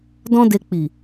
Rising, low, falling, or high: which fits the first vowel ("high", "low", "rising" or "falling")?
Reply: high